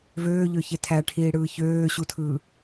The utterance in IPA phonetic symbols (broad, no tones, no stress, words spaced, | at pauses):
vøːʎøçe tʰæʈʰiːɽɯː çøːɕutʰɯː